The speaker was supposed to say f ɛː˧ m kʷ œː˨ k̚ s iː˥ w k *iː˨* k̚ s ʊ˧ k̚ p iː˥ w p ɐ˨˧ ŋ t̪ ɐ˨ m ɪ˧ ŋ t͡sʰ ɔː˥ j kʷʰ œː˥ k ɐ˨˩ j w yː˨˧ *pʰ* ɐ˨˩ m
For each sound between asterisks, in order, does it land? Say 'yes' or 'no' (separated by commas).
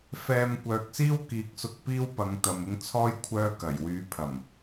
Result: yes, yes